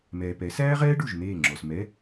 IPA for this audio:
m ɛː˨ p ɛ˩˥ s æː˥ ʁ ɛː˥ ɖ u˥˩ ʒ n̪ eː˥˩ ŋ͡ǁ ɔ˨ s m ɛ˧˥˧

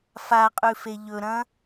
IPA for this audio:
f a qʼ ʉ f e ʎ ɵ ɾ ɐ̃ː

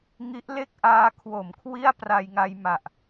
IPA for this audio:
ŋ i˦˥ ʔ l e˥˩ k̚ ʔ aː˦˥ kʰ w o˨˩ m kʰ w i˥˩ a̯ p r a˧ j ŋ a˧ j m a˨˩ ʔ

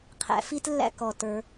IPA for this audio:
qʰ æ̰˧ f i˥ t lː æ̰˥ k ɔ˧˩ t ə˞˧

